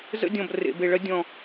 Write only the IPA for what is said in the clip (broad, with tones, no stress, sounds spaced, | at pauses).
z ə̰˦ dʲ ɔ̃˨ b r ḛ˨ b e˨ ɭ ɜ˧ dʲ ɔ̃˨